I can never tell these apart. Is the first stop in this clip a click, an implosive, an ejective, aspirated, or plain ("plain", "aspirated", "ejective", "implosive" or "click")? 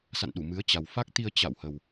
implosive